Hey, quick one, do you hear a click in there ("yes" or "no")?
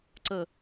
yes